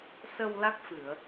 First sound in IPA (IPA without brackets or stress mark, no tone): s